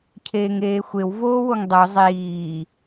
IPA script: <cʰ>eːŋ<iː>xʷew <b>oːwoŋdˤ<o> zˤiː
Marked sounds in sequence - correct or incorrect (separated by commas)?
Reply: correct, incorrect, incorrect, correct